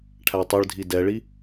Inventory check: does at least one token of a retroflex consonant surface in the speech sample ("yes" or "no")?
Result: yes